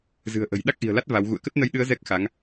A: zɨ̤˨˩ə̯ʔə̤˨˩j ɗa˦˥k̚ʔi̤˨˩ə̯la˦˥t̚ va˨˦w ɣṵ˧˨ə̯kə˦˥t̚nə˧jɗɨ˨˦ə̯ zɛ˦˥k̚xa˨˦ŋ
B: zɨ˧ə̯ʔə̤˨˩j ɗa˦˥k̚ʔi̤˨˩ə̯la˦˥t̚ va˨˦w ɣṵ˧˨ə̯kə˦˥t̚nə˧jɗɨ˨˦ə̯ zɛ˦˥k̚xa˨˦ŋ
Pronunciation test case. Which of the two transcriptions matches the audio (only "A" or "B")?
A